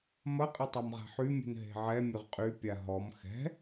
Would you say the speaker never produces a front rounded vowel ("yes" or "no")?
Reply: no